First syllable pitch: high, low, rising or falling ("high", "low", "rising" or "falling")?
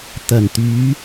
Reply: low